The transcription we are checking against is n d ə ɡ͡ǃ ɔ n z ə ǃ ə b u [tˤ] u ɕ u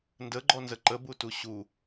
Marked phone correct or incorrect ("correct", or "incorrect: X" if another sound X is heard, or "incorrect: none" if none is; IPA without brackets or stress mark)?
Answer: incorrect: t